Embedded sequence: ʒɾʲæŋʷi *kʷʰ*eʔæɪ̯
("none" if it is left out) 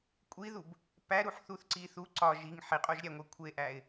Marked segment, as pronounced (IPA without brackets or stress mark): kʷʰ